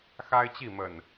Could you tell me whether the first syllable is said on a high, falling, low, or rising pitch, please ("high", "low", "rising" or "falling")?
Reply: high